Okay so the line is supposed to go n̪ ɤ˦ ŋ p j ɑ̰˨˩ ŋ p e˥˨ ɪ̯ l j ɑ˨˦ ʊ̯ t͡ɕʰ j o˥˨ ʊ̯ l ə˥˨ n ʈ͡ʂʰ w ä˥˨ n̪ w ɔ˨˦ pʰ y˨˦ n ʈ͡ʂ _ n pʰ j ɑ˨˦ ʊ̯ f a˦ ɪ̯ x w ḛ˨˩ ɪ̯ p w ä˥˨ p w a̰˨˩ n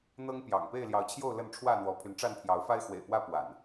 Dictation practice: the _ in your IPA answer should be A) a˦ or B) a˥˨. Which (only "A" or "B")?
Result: B